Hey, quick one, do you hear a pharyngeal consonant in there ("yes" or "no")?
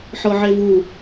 yes